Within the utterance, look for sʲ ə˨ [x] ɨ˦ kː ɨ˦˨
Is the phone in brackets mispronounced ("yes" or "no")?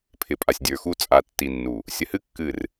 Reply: yes